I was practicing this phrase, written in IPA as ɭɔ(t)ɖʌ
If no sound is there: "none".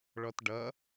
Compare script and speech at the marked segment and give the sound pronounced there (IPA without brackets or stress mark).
t